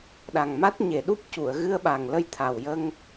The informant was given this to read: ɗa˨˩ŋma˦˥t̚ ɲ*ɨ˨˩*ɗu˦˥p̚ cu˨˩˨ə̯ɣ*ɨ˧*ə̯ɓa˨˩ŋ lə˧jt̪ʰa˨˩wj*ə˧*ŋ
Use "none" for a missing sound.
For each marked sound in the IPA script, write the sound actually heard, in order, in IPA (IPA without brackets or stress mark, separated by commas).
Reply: e˨˩, ɨ˧, ə˧